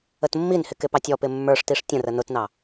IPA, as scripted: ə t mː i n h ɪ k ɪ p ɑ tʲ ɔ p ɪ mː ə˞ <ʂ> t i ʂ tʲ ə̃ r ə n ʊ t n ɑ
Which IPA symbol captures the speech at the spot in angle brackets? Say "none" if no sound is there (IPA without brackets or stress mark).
ʂ